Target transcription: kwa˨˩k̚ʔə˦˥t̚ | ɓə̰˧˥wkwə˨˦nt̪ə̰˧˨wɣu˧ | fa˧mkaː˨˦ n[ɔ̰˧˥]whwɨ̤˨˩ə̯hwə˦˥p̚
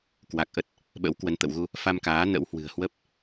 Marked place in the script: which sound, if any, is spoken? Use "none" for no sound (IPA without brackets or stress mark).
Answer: ə̰˧˥